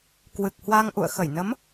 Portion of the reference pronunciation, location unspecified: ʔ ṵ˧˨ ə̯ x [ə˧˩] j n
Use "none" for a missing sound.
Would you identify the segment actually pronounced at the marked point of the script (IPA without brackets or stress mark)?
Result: ə˧˩